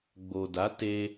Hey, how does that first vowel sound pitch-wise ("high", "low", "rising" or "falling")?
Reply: low